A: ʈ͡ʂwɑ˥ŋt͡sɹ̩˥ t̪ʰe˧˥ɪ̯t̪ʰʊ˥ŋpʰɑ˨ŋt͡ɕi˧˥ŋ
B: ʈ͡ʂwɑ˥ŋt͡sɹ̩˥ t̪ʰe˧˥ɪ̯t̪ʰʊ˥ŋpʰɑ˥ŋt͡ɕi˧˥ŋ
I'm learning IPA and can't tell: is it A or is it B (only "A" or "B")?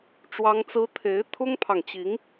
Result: A